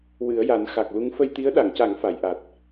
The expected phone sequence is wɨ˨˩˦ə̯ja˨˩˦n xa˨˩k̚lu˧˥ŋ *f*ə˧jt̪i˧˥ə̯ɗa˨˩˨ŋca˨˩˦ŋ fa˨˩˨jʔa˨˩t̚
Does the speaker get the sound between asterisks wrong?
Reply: no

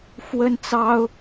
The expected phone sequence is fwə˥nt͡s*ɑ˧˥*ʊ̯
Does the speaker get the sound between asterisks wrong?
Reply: yes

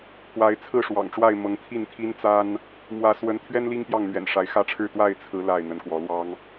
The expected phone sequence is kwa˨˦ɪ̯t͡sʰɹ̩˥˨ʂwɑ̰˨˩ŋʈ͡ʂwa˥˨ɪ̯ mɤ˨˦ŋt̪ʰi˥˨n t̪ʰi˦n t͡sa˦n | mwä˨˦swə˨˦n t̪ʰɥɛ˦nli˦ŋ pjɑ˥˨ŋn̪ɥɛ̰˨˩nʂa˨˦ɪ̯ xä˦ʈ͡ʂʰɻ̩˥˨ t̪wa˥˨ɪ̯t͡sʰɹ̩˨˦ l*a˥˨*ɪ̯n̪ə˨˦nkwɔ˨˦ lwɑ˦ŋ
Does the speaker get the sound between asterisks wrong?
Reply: no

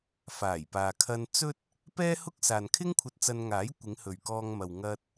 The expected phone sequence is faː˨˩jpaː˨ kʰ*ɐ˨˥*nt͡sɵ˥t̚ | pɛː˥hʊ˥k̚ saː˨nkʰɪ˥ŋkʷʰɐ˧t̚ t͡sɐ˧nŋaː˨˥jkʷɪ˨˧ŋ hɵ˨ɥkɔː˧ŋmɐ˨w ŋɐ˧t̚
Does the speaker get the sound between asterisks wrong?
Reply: yes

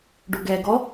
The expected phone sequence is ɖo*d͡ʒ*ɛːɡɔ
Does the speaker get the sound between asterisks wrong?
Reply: yes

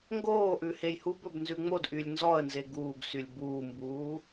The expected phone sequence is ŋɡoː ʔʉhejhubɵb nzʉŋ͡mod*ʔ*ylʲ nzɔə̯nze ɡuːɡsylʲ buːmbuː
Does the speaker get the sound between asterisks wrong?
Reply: no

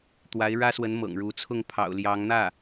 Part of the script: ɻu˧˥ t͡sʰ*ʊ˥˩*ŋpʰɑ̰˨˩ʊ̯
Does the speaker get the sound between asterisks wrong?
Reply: no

